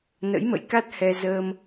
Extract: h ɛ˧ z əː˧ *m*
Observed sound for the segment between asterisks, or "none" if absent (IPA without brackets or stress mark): m